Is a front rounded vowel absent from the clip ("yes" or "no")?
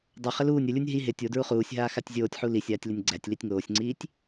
yes